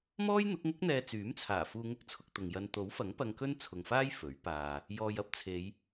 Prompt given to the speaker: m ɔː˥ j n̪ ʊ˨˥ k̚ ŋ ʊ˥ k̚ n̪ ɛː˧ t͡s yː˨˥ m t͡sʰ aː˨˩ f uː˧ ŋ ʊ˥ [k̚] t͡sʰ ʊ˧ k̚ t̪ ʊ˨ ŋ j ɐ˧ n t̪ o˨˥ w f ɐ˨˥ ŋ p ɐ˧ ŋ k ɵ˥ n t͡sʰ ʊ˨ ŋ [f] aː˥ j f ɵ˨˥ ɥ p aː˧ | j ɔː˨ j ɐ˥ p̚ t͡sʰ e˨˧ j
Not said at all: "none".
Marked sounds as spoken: k̚, f

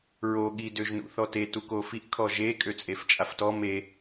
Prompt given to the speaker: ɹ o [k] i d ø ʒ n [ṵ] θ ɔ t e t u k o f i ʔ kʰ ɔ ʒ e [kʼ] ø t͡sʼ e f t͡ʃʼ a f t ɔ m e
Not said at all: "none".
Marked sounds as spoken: ɠ, ṵ, kʼ

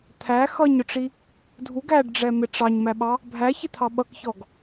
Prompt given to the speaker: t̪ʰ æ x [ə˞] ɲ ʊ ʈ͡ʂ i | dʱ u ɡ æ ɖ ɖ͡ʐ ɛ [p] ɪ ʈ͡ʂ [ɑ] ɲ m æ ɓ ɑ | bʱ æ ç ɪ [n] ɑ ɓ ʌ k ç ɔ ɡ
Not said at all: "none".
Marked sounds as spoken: ʌ, m, ɑ, t̪ʰ

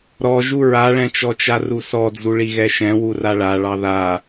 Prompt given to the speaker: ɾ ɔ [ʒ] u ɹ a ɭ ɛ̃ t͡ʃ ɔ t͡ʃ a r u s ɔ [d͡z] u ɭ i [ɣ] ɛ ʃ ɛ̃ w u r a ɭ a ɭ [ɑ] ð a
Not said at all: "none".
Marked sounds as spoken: ʒ, d͡z, ɣ, ɑ

